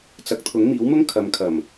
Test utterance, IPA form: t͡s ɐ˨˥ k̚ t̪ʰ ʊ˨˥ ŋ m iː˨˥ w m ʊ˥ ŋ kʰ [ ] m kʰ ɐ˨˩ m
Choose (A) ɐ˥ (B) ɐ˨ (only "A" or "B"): B